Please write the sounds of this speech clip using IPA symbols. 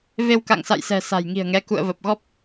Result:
v e˧ w k a̰˧˨ ŋ s a̰˧˨ j s ɛ̤˨˩ s a̤˨˩ j ŋ i̤˨˩ ə̯ ŋ ɛ˨˦ k ṵ˧˨ ə̯ v ə˨˩ p̚ ɣ ɔ˦˥ p̚

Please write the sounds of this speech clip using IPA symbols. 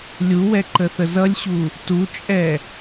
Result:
lʲ u w ɛ ǃ ə θ ə z ʌ lʲ ɕ u | t u t͡ʃʼ ɛ

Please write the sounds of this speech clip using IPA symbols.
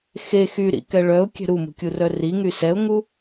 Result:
x e x y ɾ ḭ k ɛ ɭ œ ʊ̯ kʲ ɛ̤ ɾ u m ṳ kʲ u r œ r i ŋ y s ɛ ʊ̯ ŋ u

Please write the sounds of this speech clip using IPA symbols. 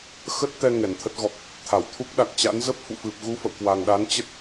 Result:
x ə˦˥ t̚ t̪ ɛ˧ ŋ ɛ˧˩ n t̪ʰ ə˦˥ t̚ ɣ ɔ˨˩ k̚ | t̪ʰ a˧˩ w t̪ʰ u˦˥ k̚ ɗ a˨˩ k̚ t͡ɕ a̰˧˥ n z ə˦˥ p̚ f ṵ˧˨ f ɨ˨˩ p̚ ɣ u˧ f ə̰˧˨ w k w a˨˩ ŋ ɗ a˨˦ n t͡ɕ ə˦˥ t̚

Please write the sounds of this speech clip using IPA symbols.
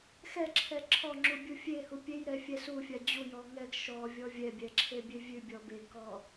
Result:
x ɛ ǁʰ ɛ ǁʰ ɔ ŋ͡ǁ u bʲ u fʲ e h u pʲ e j ɾ ɛ fʲ ɛ s u fʲ a d͡ʑ u j ɔ ŋ ɛ ɡ ʃ ɔ vʲ ɔ vʲ ɛ bʲ ɛ ǁʰ e bʲ e vʲ ʉ bʲ ɔ b e ɡ k ɔ

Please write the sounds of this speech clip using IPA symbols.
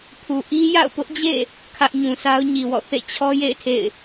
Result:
pʰ u˨ ʔ i˦ j a̰˦˨ ʊ̯ p ʊ˦ ʔ d͡ʑ ḛ˦˨ | kʰ ä˦ ʔ ɲ ũ˨ sʰ a˦ ʊ̯ ɲ i˨ w ɔ̰˦˨ θ ḛ˦˨ t͡ɕʰ ɔ˦ j ḛ˦˨ ɪ̯ tʰ ḛ˦˨ ɪ̯

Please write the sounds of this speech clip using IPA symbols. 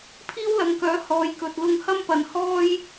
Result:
pʰ iː˥ w l ɐ˨˧ ŋ k œː˨˥ h ɔː˨˧ j k ɵ˨ t̚ l ʊ˧ ŋ h ɐ˥ m p ɐ˨ n h ɔː˥ j

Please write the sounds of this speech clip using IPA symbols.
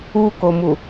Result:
u k o m u

